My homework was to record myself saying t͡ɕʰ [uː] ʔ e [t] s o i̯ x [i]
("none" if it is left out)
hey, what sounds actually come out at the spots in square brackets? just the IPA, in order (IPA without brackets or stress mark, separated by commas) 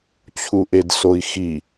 u, d, i